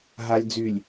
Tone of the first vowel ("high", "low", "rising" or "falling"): low